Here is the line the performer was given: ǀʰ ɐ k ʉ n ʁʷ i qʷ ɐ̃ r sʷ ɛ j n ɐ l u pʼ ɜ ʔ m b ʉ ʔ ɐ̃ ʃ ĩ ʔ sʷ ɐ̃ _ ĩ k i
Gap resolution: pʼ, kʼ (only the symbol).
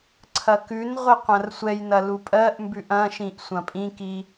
pʼ